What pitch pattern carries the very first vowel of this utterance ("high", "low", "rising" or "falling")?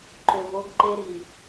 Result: low